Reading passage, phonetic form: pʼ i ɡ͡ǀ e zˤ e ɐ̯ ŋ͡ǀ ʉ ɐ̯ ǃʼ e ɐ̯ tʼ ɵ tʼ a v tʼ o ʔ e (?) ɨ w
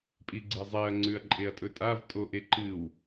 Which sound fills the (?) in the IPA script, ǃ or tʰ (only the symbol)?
ǃ